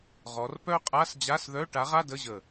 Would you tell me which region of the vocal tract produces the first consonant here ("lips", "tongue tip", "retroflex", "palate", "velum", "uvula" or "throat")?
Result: uvula